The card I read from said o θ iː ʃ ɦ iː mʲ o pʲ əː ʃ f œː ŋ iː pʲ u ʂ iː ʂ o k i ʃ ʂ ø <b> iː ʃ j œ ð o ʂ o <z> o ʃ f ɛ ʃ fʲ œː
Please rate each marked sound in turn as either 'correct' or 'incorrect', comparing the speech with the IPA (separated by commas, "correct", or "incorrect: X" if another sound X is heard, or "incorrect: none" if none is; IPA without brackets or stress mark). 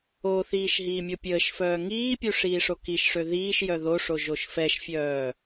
incorrect: ð, incorrect: ʒ